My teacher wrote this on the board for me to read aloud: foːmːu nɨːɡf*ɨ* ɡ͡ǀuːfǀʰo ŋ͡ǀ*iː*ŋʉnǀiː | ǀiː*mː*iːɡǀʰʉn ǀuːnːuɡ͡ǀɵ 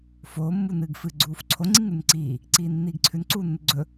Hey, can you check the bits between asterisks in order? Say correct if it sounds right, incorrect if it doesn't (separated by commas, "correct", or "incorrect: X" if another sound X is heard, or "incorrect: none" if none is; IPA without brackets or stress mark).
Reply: correct, incorrect: i, incorrect: nː